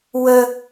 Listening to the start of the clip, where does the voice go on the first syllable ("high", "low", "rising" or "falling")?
high